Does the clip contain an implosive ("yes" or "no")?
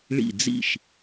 no